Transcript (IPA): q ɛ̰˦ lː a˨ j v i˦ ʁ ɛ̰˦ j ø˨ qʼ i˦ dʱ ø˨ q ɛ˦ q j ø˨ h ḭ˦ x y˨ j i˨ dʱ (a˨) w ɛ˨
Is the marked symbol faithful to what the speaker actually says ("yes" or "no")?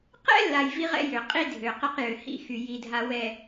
yes